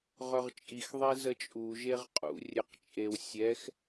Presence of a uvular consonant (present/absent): present